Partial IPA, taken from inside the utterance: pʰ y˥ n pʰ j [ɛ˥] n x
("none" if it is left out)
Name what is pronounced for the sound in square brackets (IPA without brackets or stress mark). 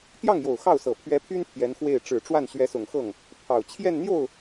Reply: ɛ˧˥